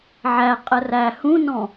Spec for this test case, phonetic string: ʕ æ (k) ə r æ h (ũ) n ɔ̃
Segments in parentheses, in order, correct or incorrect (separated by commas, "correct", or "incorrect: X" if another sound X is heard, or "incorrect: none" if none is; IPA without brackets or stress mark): incorrect: qʼ, correct